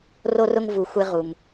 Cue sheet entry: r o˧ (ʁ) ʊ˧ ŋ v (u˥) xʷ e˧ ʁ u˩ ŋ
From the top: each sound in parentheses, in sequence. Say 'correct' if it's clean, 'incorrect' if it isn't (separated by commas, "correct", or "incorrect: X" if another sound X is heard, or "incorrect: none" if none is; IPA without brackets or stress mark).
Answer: incorrect: r, incorrect: u˩